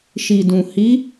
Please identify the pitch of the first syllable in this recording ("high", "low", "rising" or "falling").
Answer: low